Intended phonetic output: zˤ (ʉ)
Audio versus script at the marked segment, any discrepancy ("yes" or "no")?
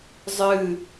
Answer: yes